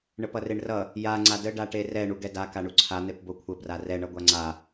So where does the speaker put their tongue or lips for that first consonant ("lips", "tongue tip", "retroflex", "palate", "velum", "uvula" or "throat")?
retroflex